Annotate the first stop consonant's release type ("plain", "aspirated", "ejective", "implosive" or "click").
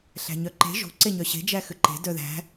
click